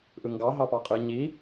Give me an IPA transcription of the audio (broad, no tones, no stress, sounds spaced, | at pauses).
ʔ ɯ ŋ ɡ ɑ ɦ ɑ p ɑ qʼ ɯ ɲ i